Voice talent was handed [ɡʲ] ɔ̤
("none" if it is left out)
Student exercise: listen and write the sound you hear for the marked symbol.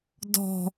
d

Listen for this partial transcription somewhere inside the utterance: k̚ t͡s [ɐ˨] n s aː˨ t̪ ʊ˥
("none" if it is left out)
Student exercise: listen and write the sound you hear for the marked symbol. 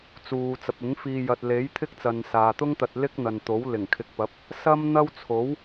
ɐ˨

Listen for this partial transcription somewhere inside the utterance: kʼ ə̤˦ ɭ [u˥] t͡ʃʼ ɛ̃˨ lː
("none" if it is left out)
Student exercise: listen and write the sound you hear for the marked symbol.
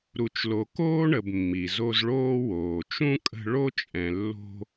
o˥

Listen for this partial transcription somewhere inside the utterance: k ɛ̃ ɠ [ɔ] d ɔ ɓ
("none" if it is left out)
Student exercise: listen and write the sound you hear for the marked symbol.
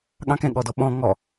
ɔ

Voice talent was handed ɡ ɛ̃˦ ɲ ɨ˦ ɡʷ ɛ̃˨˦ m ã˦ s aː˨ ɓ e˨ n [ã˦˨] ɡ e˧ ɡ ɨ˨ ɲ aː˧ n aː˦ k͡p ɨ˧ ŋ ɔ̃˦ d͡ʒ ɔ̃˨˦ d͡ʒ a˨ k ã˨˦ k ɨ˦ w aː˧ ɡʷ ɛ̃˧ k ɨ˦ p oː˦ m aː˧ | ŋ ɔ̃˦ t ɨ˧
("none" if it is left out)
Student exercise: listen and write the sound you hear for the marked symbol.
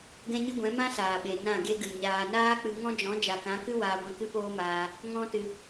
ã˦˨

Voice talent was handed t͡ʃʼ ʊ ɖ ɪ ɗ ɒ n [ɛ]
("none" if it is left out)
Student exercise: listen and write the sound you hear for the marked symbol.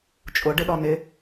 ɪ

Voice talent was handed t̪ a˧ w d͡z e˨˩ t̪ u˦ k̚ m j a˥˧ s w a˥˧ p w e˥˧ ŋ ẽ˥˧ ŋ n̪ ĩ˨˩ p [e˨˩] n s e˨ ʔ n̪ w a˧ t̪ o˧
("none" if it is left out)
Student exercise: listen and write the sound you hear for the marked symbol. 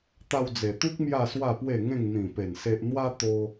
e˨˩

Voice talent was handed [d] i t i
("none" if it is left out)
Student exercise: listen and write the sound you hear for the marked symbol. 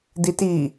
d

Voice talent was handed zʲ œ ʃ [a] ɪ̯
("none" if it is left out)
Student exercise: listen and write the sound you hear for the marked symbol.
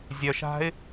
a̤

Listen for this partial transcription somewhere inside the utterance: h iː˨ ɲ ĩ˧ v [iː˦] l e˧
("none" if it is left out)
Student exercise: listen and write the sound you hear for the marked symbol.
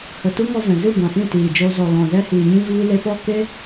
iː˧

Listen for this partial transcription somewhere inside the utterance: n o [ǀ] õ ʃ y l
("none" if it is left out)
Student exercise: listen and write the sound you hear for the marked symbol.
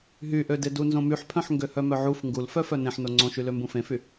ŋ͡ǀ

